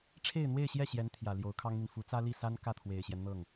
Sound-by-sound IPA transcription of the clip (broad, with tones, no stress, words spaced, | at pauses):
ʈ͡ʂʰe˥˧ɪ̯n̪we˥˧ɪ̯ɕjɛ˥˩ ɕjɛ˧˥n t̪ʰjä˨˩ ljo˧˥ʊ̯kʰɑ˥ŋn̪i˨n fu˧˥ t͡sä˥li˥˩sa˥n kä˥˩t̪ʰwe˨˩ɪ̯ɕjɛ˦n n̪ɤ˥˩ŋ